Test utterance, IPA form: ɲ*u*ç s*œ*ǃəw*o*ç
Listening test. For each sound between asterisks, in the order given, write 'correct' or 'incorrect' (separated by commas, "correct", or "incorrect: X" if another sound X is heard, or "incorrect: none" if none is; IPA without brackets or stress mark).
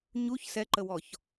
correct, incorrect: ɛ, incorrect: ɔ